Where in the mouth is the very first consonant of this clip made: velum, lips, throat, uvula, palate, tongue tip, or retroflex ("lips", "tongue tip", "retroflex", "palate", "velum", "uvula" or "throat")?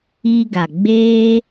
velum